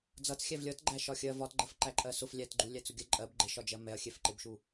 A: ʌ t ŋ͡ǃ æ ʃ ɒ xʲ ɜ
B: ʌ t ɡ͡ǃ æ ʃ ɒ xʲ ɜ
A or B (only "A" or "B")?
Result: B